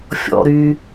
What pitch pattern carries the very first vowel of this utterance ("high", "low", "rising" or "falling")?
high